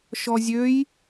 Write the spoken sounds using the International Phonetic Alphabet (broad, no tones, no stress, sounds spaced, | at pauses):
ʃ ɔ zʲ ø j